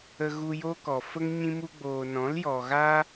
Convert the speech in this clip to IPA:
ə˧ ɣ u˧ j o˦ k ɔ˨ f ə˦ ŋ ɲ ĩ˧ m u˧ ɡ͡b oː˨ n ɔ̃˨˦ l j ɔ˨ ɣ a˦

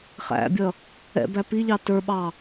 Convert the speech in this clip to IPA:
χ æ̰ bʲ ʌ | ɛ̰ b æ p i ʎ ɑ t ə˞ ɓ ɑ

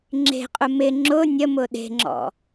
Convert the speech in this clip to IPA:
ŋ͡ǁ e̤ qʼ ʊ m ɪ ŋ͡ǁ ʊ nʲ ə m ʊ ɗ e̤ ŋ͡ǁ ɔ̰

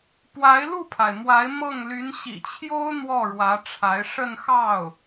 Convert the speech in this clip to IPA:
p w a˧˥ ɪ̯ l u˥˩ pʰ a˩ ɪ̯ m w a˧˥ ɪ̯ m ɤ˥˩ ŋ l y˧˥ n ɕ ḭ˨˩ t͡ɕʰ j o˥ ʊ̯ n̪ w ɔ˥˩ ɻ w ä˧˥ ʈ͡ʂʰ a˧˥ ɪ̯ ʂ ə˥˧ n x ɑ˥˩ ʊ̯

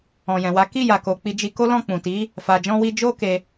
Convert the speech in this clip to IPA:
ɔ̃˨ j ɛ̃˨ w a˨˦ k i˦˨ j a˨ k o˨ k͡p i˧ d͡ʒ i˧ k o˦ l ɔ̃˦˨ k͡p ũ˨ t i˨˦ | f a˧ d͡ʒ ɔ̃˦ w i˦ d͡ʒ o˦ k e˧

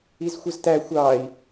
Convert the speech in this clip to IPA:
i z xʷ ə z t æ xʷ ɑ i̯

